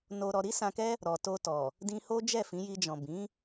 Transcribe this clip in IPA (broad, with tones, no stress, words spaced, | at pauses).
no˧ɾɔ˧ ɾi˦sã˧kɛ˦ | ɾɔ˨to˧tɔ˨ | dĩ˧ho˦ d͡ʒɛ˦˨fĩ˨˦ji˧d͡ʒɔ̃˨ bĩ˨˦